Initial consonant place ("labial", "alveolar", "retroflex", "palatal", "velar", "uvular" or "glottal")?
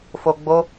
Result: labial